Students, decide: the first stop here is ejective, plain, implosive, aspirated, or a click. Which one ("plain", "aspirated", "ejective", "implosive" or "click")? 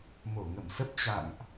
plain